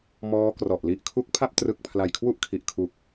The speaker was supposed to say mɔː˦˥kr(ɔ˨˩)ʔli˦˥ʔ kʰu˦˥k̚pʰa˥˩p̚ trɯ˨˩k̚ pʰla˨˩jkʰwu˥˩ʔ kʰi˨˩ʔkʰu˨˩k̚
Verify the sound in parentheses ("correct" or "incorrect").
correct